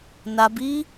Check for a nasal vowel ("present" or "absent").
absent